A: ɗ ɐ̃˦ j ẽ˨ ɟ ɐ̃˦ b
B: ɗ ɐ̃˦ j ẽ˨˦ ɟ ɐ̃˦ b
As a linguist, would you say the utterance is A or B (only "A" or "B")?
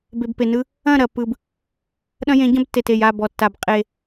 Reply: B